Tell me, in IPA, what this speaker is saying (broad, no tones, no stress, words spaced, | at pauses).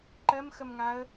ǃɜmxəmŋaə̯